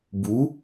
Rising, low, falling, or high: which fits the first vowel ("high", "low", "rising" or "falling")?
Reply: rising